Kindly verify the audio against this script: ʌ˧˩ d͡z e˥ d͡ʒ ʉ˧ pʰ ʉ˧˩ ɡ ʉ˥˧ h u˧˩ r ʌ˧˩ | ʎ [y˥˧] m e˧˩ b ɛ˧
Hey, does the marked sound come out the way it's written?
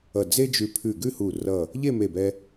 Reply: no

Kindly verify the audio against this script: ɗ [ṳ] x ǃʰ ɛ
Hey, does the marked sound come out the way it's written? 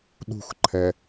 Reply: yes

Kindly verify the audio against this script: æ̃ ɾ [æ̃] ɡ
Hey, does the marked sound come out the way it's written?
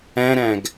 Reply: yes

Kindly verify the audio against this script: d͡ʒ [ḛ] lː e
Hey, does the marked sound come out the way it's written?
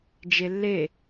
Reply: no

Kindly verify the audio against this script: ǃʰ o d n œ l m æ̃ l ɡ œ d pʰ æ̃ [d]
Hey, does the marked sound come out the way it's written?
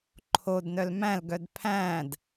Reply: yes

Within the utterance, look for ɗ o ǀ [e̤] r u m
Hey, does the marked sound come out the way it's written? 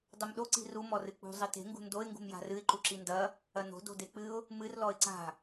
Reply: no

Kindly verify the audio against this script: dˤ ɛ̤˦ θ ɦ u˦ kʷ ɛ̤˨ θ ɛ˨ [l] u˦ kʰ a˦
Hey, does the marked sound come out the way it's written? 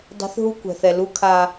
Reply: yes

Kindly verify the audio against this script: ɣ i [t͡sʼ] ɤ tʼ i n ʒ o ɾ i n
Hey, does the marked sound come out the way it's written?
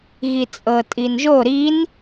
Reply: yes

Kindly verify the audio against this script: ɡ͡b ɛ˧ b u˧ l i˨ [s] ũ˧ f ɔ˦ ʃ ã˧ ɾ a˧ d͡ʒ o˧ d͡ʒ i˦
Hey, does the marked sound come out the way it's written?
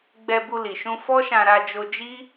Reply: no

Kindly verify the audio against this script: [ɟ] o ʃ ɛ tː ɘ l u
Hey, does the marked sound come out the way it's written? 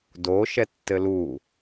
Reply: no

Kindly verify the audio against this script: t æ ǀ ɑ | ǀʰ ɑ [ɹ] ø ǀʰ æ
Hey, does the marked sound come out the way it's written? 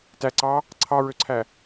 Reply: yes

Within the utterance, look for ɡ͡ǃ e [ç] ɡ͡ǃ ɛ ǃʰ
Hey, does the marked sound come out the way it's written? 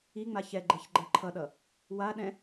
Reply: yes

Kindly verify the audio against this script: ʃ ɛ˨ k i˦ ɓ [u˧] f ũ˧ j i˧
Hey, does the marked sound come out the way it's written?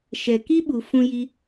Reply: no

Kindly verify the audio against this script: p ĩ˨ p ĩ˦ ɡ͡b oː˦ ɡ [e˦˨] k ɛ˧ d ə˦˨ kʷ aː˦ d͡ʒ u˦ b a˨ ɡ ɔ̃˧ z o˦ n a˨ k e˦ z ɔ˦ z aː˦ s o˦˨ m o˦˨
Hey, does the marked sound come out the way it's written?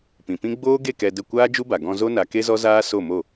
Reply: yes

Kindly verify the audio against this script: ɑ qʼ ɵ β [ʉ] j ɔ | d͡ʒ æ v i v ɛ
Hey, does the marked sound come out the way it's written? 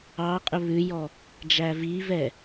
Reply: yes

